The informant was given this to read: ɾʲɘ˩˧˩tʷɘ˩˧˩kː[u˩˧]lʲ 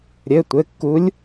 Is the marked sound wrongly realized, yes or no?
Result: yes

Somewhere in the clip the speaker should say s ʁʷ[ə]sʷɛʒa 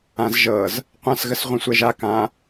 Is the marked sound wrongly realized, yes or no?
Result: yes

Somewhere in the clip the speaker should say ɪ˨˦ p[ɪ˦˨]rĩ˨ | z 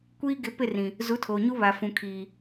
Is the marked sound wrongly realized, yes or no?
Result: no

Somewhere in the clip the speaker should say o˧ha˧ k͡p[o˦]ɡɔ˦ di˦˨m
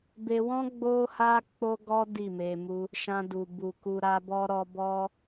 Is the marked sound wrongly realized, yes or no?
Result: no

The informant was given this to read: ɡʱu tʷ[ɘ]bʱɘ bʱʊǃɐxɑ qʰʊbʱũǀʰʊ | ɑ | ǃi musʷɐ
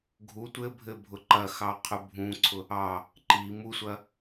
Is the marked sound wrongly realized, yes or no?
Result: no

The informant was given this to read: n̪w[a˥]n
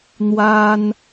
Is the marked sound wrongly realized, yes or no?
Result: no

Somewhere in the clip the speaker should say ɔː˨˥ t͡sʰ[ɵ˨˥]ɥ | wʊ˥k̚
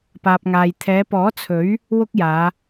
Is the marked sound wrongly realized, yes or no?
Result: no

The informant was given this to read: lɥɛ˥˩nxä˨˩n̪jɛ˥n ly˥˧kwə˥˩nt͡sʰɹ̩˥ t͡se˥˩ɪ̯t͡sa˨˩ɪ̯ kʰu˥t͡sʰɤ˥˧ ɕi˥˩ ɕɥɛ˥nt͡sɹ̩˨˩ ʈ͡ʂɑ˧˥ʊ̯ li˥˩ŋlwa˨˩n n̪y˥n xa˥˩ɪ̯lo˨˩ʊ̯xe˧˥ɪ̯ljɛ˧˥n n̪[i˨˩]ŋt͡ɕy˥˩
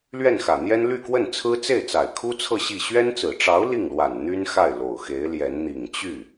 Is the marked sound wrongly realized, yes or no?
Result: no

